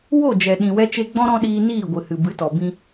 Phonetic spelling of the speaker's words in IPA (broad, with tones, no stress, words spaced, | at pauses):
wo˦˨ d͡ʒɛ˨ ɗĩ˨wɛ˧ t͡ʃe˧ɡ͡bɔ̃˦ ɾɔ̃˦ɗiː˧ niː˦˨ ɡʷɨ˨hɨ˨bɨ˨˦tɔ˨ bĩ˧